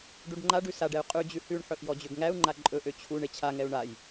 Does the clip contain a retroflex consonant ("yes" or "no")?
yes